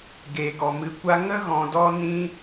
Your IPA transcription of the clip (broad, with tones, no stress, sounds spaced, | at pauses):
ɡ e˨ ɡ ɔ˨ m ɨ˨ kʷ a˧ ŋ ə˦ ɣ ɔ̃˧ d ɔ˦ n ĩ˦